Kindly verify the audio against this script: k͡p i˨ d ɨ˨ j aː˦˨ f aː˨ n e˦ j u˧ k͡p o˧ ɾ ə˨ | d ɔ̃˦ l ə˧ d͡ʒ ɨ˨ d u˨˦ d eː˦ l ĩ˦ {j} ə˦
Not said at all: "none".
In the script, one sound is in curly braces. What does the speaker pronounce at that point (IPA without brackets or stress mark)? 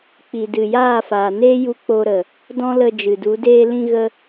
ɣ